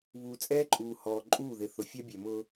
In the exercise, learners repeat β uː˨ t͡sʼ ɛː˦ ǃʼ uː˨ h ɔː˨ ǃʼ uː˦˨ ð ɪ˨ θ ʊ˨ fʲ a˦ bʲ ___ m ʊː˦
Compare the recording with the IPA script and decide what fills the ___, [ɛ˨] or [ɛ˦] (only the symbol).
ɛ˨